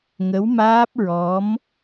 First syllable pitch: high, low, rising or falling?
rising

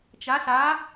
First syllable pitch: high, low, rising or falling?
rising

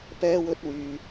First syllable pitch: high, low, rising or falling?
high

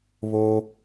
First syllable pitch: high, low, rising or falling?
high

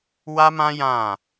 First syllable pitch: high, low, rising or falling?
high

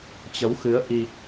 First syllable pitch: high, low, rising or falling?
rising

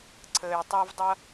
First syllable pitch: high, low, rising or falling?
low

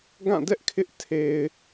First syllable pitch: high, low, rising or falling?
falling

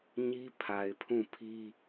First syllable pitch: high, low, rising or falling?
high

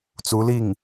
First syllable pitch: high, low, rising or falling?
rising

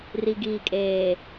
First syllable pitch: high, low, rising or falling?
low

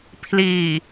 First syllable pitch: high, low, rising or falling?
low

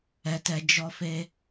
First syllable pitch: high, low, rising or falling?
high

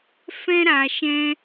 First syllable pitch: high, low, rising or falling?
high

